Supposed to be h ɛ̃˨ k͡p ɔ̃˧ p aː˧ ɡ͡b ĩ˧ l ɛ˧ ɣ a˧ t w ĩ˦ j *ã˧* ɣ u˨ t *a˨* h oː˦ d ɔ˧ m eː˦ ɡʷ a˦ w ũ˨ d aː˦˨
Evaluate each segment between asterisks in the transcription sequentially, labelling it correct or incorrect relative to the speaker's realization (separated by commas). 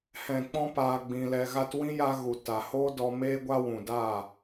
incorrect, correct